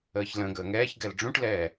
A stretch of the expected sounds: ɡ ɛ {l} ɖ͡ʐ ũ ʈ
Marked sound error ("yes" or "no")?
no